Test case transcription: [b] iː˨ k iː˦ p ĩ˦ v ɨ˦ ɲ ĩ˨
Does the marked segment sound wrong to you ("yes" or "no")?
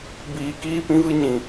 no